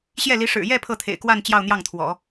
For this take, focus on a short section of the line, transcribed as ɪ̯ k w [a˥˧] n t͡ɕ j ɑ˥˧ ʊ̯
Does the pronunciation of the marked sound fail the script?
no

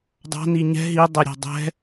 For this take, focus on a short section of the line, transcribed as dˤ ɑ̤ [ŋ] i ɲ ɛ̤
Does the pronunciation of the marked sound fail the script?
yes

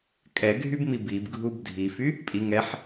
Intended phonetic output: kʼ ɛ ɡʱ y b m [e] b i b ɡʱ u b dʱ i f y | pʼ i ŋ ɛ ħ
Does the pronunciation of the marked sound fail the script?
yes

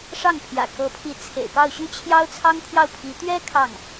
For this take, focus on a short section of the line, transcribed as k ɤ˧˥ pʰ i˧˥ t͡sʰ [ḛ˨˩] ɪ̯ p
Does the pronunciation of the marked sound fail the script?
no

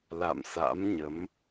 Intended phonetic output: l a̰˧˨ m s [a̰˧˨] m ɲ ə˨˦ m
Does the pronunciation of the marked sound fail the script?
yes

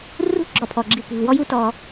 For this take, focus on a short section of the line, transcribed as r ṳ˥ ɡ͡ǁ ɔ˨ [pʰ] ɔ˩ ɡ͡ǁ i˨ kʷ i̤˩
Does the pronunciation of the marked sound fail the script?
no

